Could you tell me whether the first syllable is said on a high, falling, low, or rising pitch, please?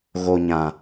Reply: low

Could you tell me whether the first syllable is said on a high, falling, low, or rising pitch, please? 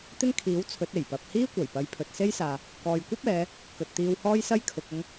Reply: high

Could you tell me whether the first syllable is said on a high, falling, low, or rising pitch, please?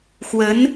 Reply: rising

